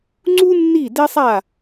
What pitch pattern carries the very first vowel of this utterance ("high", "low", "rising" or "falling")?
high